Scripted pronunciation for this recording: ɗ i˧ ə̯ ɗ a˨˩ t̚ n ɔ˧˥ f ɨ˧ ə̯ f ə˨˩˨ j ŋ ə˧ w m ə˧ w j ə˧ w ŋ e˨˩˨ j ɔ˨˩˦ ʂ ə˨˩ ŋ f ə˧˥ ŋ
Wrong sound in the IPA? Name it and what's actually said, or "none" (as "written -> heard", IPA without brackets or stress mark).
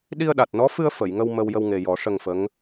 e˨˩˨ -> e˨˩